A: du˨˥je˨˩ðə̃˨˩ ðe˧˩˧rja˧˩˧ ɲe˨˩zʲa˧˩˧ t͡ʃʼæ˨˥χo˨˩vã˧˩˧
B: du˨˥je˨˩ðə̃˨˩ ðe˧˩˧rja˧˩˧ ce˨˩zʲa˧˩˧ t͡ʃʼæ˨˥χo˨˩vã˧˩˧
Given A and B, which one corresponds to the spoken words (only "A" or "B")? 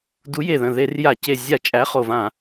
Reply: B